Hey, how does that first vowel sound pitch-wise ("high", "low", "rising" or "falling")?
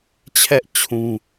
high